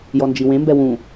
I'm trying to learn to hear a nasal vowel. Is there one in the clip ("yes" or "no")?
yes